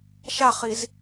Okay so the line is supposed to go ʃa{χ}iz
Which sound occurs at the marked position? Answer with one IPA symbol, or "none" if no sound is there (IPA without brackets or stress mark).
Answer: χ